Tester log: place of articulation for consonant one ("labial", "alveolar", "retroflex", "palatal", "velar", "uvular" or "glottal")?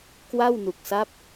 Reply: velar